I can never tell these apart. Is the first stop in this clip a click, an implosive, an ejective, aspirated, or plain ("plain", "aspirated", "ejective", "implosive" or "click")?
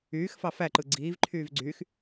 click